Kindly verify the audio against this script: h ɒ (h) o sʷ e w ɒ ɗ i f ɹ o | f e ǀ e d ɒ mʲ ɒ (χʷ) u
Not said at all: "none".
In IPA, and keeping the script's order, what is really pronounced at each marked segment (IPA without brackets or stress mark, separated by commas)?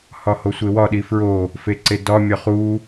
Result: h, χ